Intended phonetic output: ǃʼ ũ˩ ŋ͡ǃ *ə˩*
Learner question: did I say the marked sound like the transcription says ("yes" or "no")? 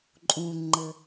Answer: yes